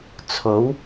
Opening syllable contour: rising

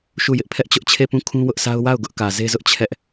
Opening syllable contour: falling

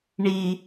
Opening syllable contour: high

